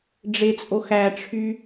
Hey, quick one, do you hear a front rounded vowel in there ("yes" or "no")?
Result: yes